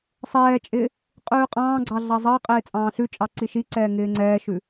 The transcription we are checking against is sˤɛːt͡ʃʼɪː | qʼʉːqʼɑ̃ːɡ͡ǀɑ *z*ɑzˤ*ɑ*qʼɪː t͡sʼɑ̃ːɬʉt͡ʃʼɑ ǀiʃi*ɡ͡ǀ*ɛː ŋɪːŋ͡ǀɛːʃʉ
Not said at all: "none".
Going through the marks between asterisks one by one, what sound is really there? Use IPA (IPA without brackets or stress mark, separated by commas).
ɮ, ɑ, ǀ